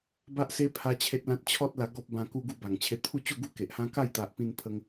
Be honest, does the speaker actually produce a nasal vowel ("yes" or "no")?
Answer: yes